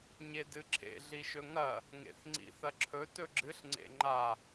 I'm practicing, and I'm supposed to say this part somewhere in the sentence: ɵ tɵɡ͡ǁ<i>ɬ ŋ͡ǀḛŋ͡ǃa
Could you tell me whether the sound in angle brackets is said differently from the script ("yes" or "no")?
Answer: yes